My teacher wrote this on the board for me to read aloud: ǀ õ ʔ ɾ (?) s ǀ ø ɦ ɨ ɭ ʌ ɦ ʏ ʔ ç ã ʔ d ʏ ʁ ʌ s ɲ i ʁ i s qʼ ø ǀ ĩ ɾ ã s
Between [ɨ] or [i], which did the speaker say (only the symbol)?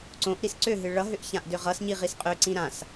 i